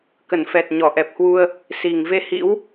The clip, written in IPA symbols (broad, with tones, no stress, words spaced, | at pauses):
kə˧˩nfɛ˨˩t̚ ɲɔ˧˩ʔɛ˨˩p̚hwu˧ə̯ | si˨˩ŋ ve˧hḭ˧˥w